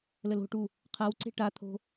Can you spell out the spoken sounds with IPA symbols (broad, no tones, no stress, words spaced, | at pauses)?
ləlo̤ʈu | qʰawǀe̤ ʈat̪ʰo̤